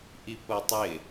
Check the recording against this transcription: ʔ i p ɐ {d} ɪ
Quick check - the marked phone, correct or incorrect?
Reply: incorrect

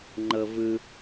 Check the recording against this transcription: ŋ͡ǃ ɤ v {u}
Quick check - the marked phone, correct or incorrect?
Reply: incorrect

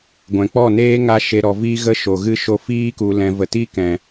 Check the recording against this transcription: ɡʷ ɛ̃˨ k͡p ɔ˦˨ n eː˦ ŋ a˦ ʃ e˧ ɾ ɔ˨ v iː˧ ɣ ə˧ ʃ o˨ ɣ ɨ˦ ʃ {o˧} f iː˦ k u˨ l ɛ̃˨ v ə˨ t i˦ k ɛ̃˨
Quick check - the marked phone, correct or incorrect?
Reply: correct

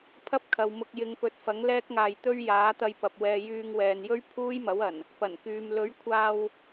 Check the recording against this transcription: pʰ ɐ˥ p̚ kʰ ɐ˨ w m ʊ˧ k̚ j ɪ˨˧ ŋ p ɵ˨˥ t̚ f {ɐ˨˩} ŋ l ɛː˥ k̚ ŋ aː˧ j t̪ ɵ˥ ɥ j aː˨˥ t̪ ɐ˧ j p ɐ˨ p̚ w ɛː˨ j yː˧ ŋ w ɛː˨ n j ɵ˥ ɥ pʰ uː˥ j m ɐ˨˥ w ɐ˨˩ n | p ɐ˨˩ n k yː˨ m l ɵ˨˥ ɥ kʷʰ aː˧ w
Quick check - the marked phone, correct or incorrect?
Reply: incorrect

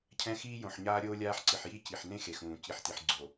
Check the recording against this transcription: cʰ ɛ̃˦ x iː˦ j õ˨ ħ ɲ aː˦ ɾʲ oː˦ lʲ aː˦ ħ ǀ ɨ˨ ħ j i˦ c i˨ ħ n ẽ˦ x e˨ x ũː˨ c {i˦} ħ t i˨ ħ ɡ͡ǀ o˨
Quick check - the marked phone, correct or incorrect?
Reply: incorrect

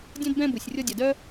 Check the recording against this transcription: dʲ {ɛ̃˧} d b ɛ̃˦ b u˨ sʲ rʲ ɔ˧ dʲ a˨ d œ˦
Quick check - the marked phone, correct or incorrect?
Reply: incorrect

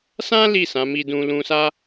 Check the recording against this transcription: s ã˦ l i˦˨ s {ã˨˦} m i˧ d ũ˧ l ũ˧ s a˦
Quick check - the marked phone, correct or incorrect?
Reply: correct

